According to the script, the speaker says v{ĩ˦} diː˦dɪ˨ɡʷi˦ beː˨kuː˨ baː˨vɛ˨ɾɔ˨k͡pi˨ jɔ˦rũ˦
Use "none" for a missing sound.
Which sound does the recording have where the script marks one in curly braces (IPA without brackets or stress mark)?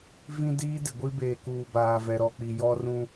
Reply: ĩ˦